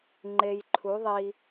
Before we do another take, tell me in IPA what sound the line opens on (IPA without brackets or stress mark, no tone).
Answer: ŋ͡ǃ